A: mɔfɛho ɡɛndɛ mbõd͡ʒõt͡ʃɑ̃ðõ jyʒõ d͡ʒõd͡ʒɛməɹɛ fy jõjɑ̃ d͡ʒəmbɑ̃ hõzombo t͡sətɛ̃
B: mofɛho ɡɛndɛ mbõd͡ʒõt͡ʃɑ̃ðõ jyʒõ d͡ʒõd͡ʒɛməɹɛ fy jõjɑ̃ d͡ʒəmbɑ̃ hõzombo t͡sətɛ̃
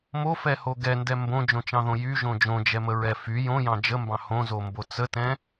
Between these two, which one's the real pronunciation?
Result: B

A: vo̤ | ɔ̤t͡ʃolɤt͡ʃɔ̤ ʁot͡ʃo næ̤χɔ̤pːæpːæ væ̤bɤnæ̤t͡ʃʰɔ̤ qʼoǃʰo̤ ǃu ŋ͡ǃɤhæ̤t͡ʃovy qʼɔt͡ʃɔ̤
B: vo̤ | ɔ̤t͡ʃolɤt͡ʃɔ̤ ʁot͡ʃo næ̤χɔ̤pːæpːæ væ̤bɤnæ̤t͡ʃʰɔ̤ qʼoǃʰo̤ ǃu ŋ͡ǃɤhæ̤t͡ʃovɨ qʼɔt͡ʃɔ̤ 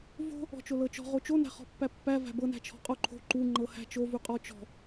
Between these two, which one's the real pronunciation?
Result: A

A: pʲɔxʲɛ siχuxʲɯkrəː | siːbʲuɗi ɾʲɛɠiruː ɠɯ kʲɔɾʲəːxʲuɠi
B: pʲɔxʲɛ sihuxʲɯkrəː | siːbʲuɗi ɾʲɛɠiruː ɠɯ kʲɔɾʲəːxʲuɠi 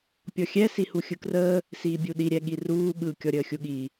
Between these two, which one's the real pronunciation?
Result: B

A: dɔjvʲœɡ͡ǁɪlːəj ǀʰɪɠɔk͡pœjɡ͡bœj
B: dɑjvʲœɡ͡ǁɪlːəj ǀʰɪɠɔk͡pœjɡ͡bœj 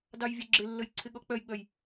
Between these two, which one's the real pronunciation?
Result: B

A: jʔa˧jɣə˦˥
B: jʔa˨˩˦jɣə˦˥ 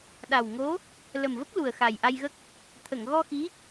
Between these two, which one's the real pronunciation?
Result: A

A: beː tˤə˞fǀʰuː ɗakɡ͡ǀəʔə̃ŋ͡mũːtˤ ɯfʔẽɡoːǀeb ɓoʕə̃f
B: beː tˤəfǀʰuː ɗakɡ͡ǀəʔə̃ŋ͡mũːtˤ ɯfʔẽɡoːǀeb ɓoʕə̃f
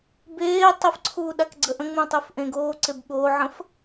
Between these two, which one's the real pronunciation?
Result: B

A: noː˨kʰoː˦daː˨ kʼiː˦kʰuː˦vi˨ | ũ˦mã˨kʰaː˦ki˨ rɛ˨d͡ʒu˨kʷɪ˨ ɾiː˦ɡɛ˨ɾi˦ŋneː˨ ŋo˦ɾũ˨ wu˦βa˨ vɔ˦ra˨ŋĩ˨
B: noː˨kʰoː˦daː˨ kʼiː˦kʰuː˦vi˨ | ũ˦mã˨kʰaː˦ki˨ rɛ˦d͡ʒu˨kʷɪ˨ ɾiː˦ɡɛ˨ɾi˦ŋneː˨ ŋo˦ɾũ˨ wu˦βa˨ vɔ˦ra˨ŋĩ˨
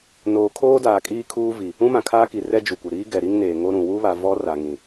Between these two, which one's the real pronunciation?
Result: B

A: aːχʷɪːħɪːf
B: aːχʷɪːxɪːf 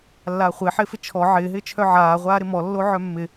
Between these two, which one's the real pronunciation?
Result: A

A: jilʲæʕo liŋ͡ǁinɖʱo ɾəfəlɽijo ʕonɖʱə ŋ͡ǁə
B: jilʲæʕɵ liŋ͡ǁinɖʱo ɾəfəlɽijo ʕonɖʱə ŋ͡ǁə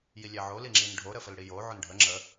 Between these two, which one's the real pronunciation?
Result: A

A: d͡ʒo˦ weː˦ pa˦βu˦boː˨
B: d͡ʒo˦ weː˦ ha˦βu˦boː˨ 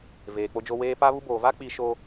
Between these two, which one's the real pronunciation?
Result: A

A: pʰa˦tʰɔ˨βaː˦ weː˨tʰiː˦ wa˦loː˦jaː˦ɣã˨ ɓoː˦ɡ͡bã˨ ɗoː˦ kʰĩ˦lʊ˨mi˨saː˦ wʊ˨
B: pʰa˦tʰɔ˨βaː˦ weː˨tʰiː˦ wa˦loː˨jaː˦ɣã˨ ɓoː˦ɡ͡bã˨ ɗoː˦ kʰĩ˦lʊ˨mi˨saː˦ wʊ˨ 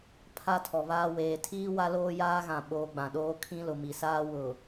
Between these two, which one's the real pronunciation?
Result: A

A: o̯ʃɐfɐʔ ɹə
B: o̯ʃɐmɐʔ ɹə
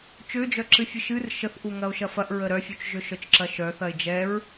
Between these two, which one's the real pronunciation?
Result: A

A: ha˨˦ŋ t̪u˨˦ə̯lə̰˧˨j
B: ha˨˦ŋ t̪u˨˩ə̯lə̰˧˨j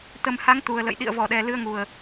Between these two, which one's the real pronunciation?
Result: B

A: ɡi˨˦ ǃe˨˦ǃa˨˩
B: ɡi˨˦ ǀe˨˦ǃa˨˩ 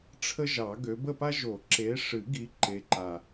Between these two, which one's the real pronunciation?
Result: A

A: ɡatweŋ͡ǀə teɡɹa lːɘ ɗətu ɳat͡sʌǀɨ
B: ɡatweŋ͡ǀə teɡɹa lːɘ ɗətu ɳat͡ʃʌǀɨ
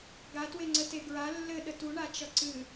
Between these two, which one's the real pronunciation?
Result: B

